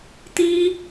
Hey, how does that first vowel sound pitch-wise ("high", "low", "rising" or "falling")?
high